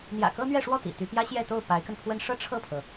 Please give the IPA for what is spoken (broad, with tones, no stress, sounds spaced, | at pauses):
n̪ j ä̰˨˩ k ɤ˥ n̪ ɥ ɛ˥˧ ʂ w ɔ˥˩ t̪ ḭ˨˩ t̪ y˧˥ p j ä˥ ɕ j ɛ˥˧ t̪ o˥˩ ʊ̯ p a˧˥ ɪ̯ k ə˧ n pʰ w ə˥˧ n ʂ ɤ˥˧ ʈ͡ʂʰ ɤ˥˩ pʰ ɤ˩